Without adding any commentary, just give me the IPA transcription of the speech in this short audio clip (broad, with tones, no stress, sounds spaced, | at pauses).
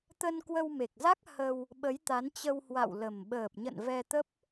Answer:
t̪ ə˧ n k w ə˧ w m e˨˩ k̚ z a˦˥ k̚ h ə˧ w | ɓ ə˨˦ j t̪ a˨˦ n t͡ɕ ə˧ w h w a̰˧˨ w l ə˨˩ m ɓ əː˨˩ p̚ ɲ ə̰˧˨ n v ɛ˧ t̪ ə˦˥ p̚